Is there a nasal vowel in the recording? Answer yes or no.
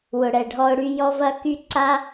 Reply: no